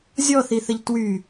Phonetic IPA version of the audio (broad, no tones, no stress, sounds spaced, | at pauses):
zʲ ɔ θ i θ ə ʎ t w y